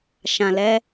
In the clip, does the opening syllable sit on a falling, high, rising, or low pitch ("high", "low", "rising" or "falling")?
low